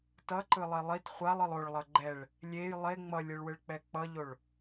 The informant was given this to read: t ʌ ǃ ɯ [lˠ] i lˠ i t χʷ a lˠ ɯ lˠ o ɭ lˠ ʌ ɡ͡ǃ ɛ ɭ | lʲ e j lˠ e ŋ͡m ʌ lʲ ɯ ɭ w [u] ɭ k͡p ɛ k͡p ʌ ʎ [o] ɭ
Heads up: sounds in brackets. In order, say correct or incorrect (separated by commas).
correct, incorrect, correct